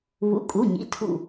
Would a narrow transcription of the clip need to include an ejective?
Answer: yes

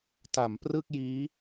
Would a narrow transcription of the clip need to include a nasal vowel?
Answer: no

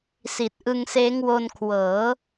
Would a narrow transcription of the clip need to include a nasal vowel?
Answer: no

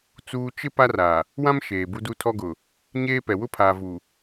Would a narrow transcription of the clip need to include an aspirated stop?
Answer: yes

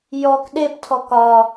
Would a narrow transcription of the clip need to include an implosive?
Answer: yes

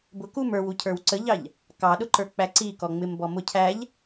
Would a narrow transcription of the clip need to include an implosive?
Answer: yes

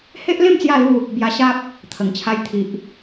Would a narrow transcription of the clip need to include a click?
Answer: no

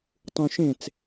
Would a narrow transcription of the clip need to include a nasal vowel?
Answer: yes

